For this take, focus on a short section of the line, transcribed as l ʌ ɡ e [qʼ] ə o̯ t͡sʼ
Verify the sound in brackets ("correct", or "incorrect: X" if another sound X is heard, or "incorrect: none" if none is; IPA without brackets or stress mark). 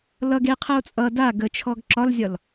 incorrect: qʰ